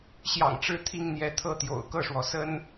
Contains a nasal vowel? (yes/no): no